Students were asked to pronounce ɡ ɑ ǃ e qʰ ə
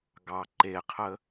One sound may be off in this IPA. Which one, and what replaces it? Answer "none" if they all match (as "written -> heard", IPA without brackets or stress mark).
none